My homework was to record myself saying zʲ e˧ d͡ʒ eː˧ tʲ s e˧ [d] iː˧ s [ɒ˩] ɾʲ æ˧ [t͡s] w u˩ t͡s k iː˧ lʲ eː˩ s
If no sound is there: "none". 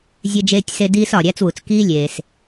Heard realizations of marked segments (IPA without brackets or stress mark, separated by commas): d, ɒ˩, t͡s